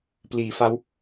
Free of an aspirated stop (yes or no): yes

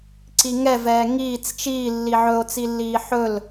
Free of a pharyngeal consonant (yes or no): no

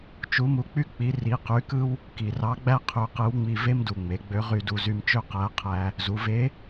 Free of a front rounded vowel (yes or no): no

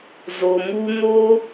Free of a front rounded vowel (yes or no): yes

